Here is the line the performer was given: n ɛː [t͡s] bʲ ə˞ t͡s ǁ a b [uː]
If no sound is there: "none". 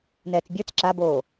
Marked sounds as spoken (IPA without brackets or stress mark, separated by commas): t͡s, oː